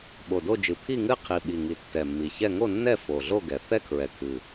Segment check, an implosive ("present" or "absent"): present